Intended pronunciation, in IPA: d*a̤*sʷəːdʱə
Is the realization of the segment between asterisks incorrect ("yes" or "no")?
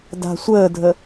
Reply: no